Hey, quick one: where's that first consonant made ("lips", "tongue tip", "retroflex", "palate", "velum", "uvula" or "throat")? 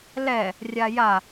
tongue tip